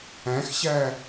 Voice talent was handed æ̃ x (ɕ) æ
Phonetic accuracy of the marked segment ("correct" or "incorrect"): correct